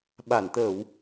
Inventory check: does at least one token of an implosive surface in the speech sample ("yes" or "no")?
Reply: yes